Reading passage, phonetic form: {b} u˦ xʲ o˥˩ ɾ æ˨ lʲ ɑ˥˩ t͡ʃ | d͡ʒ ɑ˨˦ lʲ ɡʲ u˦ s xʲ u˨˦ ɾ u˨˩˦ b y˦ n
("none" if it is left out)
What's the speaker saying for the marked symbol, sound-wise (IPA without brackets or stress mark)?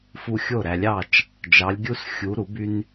f